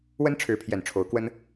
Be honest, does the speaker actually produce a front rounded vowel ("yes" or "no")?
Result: no